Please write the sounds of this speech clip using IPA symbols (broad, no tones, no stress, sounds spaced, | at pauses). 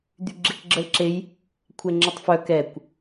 d̪ y ɡ͡ǁ e k ɡ͡ǁ ə l ǁ e j | kʷʰ ɛ ŋ͡ǁ ə tˤ f œ k ɛ kʷ